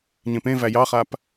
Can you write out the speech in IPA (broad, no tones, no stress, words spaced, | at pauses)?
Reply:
ɲẽpẽvæ jɑχap